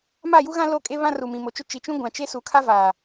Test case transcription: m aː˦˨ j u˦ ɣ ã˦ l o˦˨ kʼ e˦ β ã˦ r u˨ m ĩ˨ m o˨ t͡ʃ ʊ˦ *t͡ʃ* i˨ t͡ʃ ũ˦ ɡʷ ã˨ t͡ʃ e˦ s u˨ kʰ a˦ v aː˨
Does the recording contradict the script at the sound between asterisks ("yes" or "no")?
no